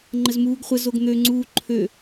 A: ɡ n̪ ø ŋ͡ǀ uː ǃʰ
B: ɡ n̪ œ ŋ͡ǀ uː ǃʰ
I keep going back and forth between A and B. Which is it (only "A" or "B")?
A